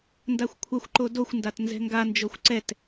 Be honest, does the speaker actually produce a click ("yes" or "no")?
yes